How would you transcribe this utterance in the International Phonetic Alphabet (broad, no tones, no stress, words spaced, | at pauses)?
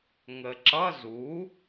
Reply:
ŋəǁʌ zu